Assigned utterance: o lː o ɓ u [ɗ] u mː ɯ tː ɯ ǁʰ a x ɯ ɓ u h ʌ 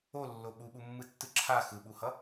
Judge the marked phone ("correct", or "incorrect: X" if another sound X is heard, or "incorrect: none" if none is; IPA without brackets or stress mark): incorrect: ɓ